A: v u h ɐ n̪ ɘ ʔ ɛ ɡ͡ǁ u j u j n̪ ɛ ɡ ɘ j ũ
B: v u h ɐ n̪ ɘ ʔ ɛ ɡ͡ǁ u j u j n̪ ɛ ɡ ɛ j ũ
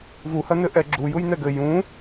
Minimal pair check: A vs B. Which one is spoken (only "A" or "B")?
A